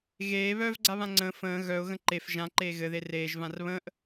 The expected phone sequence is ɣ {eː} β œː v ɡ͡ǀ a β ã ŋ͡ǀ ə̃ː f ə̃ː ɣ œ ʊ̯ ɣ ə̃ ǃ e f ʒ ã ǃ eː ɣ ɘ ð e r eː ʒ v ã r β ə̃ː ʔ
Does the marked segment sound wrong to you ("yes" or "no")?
no